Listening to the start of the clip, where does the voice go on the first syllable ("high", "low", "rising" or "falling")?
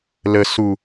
low